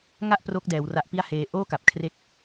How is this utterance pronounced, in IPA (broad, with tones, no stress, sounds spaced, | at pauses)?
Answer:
ŋ a˥˩ ʔ p r o˦˥ k̚ d ɛː˩˦ w r a˦˥ ʔ p i˥˩ a̯ h eː˧ ʔ oː˥˩ k a˨˩ p̚ kʰ r e˦˥ k̚